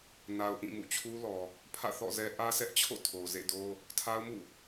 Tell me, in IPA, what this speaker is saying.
n a˨ ʊ̯ ʔ ĩ˦˨ m ṵ˦˨ t͡ɕʰ u˦ l ɔ˨ | pʰ ä̰˦˨ θ ɔ̰˦˨ z ɛ˦ ʔ ä˦ sʰ ɛ˦ ʔ t͡ɕʰ o̰˦˨ tʰ o˨ z ḛ˦˨ d o˦ | tʰ a˦ ʊ̯ m ṵ˦˨

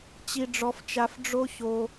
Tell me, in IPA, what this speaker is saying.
t͡ɕ i˦ ɖ͡ʐ ɔ˦ f t͡ʃ a˦ f ɖ͡ʐ o˦ ç o˦

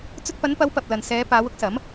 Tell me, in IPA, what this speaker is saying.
t͡s ɵ˧ t̚ p ɐ˨˧ n p ɐ˨˧ w p ɐ˨ p̚ l ɐ˨ n s ɛː˨˧ p aː˨˧ w ʊ˥ k̚ s ɐ˨˥ m

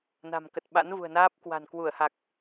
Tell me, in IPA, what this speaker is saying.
n a̤˨˩ m k ə˨˩ t̚ ɓ a̰˧˥ n v ṳ˨˩ ə̯ n aː˦˥ p̚ k w a̤˨˩ n k w u˧˩ ə̯ h a˨˩ k̚

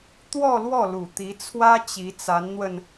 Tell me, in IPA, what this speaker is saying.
t̪ w ɔ˥˧ l w ɔ˥˩ l u˨˩ t̪ i˧˥ t͡sʰ w ä˥ t͡ɕ i˧˥ t͡s a˧˥ n n̪ w ə˧ n

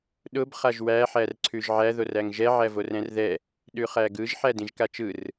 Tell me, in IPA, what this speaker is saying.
ɗ ʊ b χ a ʒ w æ ħ æ r ǀʰ ʉ ʒ ʕ æ ð o r æ ŋ ʒ ɛ ʕ æ v o r ɛ̃ r ð ɛ | ɗ ʉ χ æ ɡ ɯ ʒ ħ æ d ĩ ʒ k a t͡ʃ ɯ r

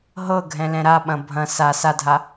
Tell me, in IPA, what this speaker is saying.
ɦ ɤ ɡʱ ɛ̃ l ɛ̃ ɾ a ɓ ɐ̃ bʱ ɐ̃ s a s a dʱ a

